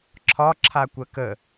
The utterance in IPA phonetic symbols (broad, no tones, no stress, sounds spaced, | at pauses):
ǁʰ ɒ ǁʰ a kʷ ɜ k ə